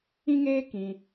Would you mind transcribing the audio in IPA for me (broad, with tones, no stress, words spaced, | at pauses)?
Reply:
ĩ˦ŋeː˦ kĩ˧